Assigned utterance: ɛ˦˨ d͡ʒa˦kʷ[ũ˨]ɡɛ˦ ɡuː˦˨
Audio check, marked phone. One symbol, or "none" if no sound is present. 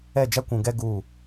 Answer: ũ˨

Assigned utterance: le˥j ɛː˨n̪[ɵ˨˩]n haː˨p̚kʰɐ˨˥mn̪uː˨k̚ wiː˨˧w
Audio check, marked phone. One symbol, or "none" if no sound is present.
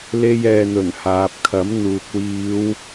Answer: ɵ˨˩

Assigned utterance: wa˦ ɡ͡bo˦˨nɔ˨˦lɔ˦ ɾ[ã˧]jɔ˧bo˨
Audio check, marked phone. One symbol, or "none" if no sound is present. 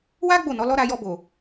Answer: a˧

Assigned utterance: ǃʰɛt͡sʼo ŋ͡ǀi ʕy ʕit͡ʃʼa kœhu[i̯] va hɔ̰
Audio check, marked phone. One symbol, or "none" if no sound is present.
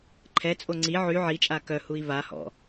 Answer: i̯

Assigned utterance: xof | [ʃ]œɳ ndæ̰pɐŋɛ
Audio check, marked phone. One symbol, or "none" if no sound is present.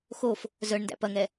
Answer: z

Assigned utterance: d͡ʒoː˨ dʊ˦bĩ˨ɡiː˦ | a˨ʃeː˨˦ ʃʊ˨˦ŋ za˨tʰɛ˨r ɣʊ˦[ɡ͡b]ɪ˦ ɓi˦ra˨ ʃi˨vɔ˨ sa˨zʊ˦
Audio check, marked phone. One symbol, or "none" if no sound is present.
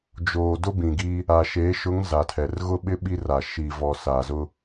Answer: ɓ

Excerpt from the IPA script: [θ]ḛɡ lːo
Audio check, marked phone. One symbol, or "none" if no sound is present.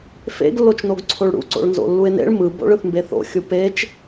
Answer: f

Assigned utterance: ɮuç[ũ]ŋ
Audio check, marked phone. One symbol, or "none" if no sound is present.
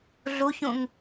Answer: ũ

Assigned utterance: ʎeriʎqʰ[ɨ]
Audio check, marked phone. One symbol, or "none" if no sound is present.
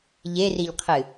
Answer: ɨ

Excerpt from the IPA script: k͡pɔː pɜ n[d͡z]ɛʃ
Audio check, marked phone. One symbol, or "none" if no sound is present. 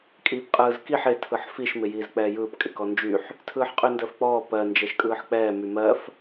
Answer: d͡ʒ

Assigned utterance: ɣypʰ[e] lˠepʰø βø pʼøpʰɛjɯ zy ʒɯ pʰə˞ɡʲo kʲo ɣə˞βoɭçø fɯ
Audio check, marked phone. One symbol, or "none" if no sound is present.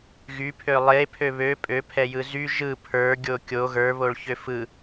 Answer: ø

